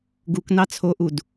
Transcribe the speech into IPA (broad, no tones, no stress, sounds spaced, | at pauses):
ɡ u k n ɑ t͡sʰ o ʔ u d